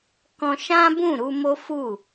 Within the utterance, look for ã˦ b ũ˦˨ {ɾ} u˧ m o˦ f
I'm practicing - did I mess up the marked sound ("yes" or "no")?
no